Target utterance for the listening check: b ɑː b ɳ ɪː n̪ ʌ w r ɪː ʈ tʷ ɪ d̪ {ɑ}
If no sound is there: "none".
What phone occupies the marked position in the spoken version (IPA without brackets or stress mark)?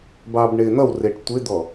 ɔ